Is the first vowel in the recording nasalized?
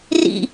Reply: no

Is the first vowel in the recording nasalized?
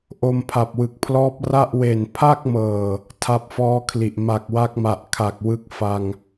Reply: no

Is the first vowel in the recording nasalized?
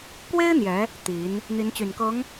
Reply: no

